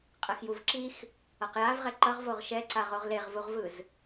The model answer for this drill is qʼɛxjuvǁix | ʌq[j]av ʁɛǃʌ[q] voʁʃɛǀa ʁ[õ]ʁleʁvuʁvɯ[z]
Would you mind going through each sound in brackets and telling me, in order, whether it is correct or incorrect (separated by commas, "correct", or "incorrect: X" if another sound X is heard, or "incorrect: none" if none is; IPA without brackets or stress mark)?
correct, incorrect: ʁ, incorrect: o, correct